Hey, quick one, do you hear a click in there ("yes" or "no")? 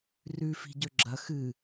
yes